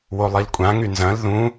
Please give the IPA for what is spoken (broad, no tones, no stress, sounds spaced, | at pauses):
w o lˠ i l kʷʼ ã ŋ y n z ɐ̃ l ð ũ